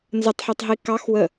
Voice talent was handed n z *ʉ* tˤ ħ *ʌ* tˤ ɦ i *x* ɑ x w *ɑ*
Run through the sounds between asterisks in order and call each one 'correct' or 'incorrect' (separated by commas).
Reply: incorrect, correct, incorrect, incorrect